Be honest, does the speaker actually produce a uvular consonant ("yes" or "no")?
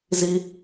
no